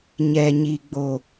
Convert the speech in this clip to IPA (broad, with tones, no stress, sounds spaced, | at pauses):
ɲ ɛ˨ ɲ i˨ ɡ͡b o˨